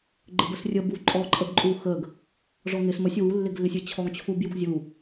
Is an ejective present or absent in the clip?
present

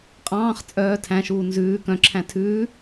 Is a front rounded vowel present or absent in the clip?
present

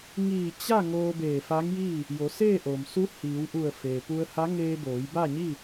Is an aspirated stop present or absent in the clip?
absent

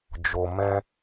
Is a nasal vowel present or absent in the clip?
present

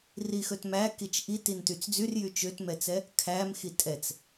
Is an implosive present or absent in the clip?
absent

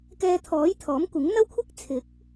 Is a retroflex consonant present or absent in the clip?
absent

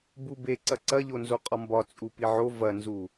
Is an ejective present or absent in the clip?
present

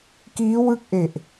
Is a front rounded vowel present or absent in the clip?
absent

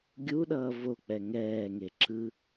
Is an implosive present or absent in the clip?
present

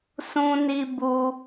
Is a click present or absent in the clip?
absent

